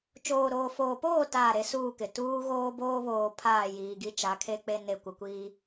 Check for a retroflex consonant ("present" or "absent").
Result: absent